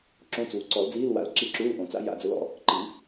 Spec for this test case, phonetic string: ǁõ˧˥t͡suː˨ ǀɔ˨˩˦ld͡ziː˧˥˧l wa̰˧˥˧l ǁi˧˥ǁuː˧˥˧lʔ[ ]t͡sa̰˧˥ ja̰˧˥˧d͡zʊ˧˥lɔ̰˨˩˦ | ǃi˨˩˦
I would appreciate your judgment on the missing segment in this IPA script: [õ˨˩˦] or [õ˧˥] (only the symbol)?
õ˨˩˦